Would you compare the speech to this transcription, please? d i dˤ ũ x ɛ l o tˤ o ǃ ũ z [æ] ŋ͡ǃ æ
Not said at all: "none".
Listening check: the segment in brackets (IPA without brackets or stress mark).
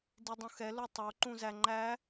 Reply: æ